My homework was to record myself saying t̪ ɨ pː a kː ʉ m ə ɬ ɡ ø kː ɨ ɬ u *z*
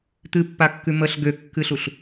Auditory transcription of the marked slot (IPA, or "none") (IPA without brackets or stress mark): ɬ